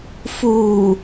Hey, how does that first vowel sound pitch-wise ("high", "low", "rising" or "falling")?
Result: low